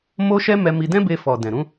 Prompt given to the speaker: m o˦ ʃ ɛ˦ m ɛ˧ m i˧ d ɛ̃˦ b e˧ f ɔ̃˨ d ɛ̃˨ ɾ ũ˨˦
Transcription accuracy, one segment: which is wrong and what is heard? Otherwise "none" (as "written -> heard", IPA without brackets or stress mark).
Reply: ɔ̃˨ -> ɔ˨